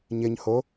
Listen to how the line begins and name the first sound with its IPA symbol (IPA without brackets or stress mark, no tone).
ɲ